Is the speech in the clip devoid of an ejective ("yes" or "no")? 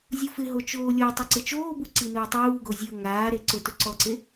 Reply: yes